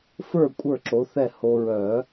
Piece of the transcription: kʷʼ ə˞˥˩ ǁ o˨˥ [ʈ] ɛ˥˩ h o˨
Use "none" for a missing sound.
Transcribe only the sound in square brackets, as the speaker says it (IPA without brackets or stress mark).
θ